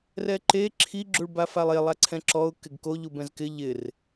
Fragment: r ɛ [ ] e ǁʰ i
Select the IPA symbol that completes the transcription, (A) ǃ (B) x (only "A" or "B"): A